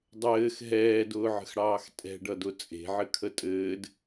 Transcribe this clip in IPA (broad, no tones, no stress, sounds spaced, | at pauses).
dˤ ɘː x ɦ ɛː d ʊː ʕ ə̤ x ɽ ɑː x tʼ ɛ̤ ɖ ʌ d ʊ t͡sʼ e̤ ʕ ɘ kʰ ə tʼ ɘː d